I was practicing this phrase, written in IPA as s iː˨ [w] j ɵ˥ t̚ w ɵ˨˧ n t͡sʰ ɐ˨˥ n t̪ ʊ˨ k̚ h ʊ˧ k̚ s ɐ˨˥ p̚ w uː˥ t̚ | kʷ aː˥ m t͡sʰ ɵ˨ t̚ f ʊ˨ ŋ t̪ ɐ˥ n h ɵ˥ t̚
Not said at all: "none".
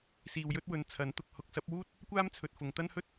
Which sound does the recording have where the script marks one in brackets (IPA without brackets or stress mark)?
w